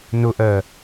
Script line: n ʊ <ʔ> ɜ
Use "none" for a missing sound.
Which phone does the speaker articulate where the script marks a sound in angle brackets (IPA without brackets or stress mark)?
ʔ